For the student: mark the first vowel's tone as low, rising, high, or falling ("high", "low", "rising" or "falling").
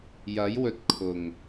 rising